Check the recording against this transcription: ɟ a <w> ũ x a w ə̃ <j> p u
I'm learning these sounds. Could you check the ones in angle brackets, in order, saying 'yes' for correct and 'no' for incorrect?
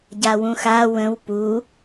yes, no

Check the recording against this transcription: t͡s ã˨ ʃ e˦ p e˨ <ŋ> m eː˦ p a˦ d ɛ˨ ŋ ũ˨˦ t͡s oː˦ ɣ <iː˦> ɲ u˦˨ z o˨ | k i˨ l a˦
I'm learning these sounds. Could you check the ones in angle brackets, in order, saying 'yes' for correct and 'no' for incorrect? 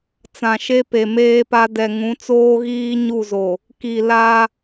no, yes

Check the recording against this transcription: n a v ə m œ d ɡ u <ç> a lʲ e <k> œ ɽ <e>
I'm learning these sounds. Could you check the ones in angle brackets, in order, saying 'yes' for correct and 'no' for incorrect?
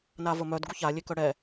yes, yes, no

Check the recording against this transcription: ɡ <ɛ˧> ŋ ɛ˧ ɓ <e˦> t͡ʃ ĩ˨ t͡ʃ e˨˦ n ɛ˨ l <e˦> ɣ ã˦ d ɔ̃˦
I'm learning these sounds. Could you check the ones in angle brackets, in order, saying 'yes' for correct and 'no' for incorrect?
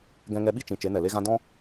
no, no, yes

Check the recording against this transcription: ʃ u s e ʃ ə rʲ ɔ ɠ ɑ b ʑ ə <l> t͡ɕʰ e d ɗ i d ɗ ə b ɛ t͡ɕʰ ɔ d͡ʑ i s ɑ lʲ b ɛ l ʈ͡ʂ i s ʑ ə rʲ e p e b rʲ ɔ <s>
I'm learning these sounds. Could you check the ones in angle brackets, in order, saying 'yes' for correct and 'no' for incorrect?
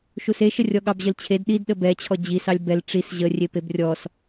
yes, yes

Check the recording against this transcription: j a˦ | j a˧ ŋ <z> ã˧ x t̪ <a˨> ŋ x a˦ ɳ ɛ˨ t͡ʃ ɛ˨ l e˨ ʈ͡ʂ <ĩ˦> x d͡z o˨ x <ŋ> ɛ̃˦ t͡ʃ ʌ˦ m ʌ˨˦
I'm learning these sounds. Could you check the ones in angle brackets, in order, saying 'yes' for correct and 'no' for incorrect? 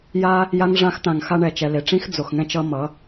no, no, yes, yes

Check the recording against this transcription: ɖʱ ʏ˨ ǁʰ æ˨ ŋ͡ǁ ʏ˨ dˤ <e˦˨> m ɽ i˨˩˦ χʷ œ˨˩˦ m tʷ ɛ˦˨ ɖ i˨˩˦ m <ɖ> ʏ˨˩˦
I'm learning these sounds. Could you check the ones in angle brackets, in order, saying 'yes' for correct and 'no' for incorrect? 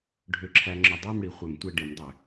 yes, no

